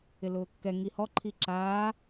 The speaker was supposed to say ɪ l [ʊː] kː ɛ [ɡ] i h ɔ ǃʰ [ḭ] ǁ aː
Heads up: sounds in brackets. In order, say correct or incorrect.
correct, incorrect: ŋ, incorrect: i

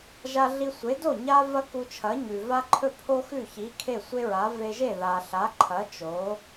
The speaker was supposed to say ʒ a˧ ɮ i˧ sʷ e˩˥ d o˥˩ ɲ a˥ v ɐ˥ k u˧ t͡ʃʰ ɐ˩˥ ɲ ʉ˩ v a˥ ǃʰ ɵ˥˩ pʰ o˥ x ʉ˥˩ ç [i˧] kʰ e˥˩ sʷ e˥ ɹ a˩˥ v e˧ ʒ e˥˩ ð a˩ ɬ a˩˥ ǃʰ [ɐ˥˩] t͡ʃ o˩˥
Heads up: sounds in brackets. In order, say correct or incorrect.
incorrect: i˩˥, incorrect: ɐ˩˥

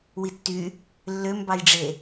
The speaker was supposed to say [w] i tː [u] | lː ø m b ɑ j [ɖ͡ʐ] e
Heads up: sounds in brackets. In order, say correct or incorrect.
correct, incorrect: y, correct

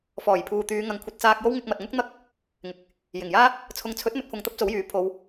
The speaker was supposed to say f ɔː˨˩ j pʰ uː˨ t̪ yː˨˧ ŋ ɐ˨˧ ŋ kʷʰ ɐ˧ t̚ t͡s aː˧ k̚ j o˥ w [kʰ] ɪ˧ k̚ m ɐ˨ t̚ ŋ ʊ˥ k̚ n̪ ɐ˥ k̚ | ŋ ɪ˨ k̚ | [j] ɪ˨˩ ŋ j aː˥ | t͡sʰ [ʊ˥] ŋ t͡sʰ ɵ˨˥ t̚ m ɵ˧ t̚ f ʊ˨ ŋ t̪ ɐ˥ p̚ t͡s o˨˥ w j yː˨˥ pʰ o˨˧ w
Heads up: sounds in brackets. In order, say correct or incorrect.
incorrect: ŋ, correct, incorrect: ʊ˨˥

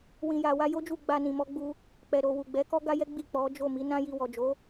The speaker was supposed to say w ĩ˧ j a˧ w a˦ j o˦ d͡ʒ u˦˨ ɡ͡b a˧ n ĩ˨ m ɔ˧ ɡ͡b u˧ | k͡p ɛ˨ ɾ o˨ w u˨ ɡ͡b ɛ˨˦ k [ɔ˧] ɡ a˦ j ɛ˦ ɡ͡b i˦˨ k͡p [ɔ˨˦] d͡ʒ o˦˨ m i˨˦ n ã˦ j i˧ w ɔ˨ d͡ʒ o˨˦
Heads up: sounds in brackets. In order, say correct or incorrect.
incorrect: ɔ˦, correct

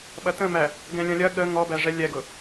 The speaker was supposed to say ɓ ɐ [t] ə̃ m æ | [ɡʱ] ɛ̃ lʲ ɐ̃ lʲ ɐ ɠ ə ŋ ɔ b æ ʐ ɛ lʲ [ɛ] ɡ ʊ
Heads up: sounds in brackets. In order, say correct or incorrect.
correct, incorrect: ɡ, correct

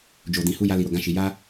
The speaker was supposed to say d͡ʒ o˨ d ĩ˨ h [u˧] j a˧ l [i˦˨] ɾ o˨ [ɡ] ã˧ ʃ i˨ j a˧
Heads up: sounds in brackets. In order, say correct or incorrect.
correct, incorrect: i˨, correct

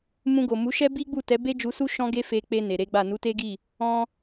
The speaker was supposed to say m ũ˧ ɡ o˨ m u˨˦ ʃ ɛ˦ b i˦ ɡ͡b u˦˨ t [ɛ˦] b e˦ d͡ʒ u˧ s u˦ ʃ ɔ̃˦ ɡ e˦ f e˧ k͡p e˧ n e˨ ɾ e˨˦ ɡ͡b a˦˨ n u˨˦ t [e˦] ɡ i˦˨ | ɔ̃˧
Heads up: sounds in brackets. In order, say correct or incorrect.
incorrect: ɛ˨˦, correct

